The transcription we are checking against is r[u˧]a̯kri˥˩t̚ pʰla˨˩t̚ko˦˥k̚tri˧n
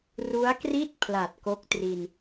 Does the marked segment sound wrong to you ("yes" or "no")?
yes